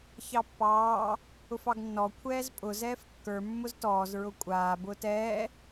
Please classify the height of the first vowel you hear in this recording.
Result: low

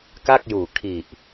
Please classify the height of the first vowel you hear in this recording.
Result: low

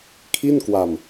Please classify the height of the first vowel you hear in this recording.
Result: high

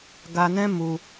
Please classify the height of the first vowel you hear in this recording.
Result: low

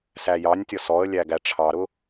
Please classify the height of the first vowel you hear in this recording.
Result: low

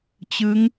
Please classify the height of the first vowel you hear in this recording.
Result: high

